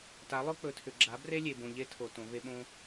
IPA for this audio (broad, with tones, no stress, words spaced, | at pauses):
ta˨˦lˠɵ˦ k͡pɵ˨tʰʏ˨ɡ͡ǁa˨˦ bre˦lʲe˨bõ˨ ʎe˦tʰo˨ tõ˨˦ve˦ ɓõ˦